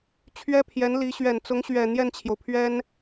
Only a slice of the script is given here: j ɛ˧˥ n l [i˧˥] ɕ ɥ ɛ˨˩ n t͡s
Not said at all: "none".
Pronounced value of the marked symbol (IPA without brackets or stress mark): i˧˥